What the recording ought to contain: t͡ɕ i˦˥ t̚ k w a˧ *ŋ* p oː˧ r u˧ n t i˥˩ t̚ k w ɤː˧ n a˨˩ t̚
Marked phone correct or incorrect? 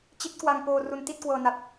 correct